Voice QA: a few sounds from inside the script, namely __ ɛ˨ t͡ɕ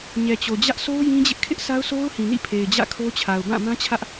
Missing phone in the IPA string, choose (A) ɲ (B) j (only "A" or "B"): A